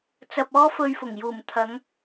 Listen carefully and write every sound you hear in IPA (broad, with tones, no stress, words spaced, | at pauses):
t͡sɐ˧p̚ɔː˥fɵ˧ɥfʊ˨˩ŋ juː˨˩mt̪ʰɐ˨˧ŋ